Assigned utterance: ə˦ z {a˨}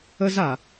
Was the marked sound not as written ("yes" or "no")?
no